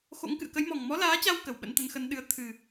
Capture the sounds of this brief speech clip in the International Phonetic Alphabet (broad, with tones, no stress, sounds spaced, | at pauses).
x o̰˧˥ ŋ k ɨ̰˧˨ ə̯ k ə˨˦ j m ɔ˨˩ ŋ m ɔ˨˦ l aː˨˦ t͡ɕ a˧ w k ə˧˩ w ɓ ə̰˧˥ n t̪ ə˨˦ n x ə˨˦ n ɗ ɨ˨˦ ə̯ t̪ʰ ɨ˨˩